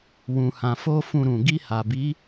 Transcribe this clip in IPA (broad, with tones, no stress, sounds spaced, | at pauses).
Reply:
w ũ˨ h ã˨ f o˧ f ũ˧ ɾ ũ˨ ɡ i˧ h a˨ b i˨˦